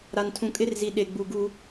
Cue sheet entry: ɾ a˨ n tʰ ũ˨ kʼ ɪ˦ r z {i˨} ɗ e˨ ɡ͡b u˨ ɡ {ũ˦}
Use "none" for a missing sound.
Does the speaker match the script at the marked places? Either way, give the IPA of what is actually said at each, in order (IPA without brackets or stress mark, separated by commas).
i˨, u˦